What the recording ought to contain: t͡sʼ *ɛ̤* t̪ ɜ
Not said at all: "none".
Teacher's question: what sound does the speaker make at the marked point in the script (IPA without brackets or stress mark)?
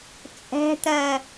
ɛ̤